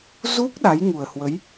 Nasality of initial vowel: oral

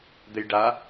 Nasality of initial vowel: oral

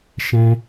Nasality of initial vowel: nasal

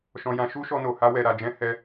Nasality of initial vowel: nasal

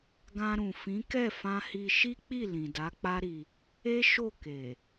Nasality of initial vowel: nasal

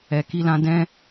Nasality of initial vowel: oral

